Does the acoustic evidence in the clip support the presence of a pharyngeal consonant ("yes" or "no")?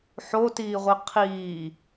yes